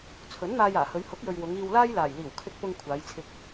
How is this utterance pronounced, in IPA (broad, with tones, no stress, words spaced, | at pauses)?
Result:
t͡sʰɵ˨˥nn̪aː˧jaː˨˩hɵ˨˧ɥ hʊ˨˥k̚jɵ˨ɥ wʊ˨˧ŋiː˧wlaː˥j laː˨˩jliː˨˩w kʰɪ˧k̚pʊ˧ŋ kʷʰaː˨˧jt͡sʰɪ˧k̚